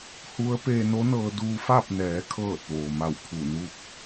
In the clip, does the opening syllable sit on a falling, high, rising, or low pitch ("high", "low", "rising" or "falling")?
rising